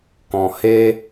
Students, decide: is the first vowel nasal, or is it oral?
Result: nasal